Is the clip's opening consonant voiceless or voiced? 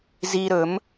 voiced